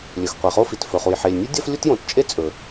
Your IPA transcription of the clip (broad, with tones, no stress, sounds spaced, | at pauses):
lʲ ɵ˩ x qʷ e˩ χ o˥ f i˩ t f ɵ˩ χ u˩ j ħ e˩ lʲ nʲ ʉ˥ dʲ ɐ˥ f lʲ u˥ t j õ˩ t t͡ʃʼ e˥ t͡sʼ ɵ˩